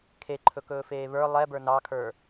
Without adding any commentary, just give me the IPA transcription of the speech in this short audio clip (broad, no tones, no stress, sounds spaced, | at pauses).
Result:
kʰ e ǃʰ ɵ k ɵː f eː β ə˞ lˠ ɛ b ə˞ n ɑ kʰ ə˞